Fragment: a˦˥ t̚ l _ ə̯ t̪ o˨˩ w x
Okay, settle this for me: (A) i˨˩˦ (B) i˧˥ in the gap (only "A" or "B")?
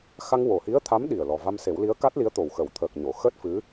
B